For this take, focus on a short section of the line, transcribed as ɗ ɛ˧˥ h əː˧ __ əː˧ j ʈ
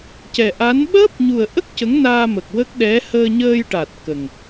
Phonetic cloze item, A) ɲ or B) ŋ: A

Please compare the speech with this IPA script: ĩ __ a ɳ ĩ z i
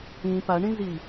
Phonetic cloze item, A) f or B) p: B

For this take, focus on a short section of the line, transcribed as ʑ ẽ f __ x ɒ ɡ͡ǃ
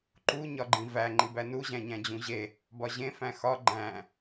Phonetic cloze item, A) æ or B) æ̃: B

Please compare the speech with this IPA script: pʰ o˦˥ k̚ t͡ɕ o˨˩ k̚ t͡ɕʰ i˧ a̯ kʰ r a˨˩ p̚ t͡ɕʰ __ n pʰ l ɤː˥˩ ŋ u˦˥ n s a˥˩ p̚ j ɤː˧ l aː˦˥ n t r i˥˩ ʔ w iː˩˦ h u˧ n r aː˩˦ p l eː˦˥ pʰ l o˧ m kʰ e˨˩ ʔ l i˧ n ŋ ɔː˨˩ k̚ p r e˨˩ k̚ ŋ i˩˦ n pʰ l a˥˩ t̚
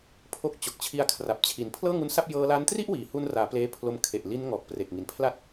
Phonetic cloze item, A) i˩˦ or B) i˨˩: A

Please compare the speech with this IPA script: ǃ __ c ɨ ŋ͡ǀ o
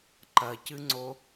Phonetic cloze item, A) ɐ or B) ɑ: A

